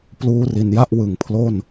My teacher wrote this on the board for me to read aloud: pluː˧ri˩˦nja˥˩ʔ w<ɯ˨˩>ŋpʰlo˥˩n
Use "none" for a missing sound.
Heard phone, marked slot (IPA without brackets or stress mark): ɯ˩˦